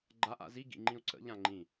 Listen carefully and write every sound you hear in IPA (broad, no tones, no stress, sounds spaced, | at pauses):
ɡ͡ǃ a ʔ a̰ z i ɡ ḭ ŋ͡ǃ ĩ u̯ ǀ ə̰ ʎ ã ŋ͡ǃ ĩ